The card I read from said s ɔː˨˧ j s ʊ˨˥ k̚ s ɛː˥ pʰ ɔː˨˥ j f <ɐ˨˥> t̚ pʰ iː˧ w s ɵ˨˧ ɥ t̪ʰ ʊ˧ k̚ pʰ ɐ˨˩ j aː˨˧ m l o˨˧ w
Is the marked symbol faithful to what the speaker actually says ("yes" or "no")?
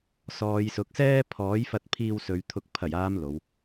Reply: no